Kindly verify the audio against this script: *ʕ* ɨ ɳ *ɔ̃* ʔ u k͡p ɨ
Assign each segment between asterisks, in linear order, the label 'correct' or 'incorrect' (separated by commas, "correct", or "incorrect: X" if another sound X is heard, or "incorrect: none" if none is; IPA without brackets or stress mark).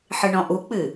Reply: incorrect: ħ, correct